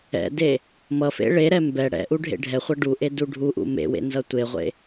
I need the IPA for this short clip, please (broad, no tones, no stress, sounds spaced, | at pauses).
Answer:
ɛ̰ d e | m ʌ f ḛ ɭ e ɾ ɛ m b ɛ ɽ ɛ̰ ʔ u ɖʱ ḛ ɖʱ ɛ χʷ ʌ ɖ u ʔ e d u ɖʱ u ʔ ṵ m ḛ w ḛ n z ʌ tʷ e ʁʷ ḛ